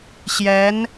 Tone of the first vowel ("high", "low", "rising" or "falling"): rising